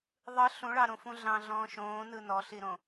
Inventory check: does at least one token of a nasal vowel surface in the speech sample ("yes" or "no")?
yes